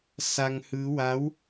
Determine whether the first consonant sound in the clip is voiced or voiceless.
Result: voiceless